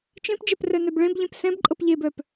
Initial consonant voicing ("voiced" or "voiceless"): voiceless